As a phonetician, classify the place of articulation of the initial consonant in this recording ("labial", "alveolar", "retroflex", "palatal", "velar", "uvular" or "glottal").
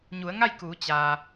palatal